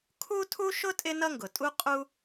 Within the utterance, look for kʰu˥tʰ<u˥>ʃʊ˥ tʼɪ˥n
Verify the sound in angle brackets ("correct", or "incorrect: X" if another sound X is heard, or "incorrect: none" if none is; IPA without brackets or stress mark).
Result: correct